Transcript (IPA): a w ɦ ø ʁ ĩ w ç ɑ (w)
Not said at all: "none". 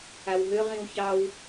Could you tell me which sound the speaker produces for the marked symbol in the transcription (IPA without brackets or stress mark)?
w